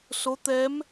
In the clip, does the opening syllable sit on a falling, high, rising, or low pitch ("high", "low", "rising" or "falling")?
rising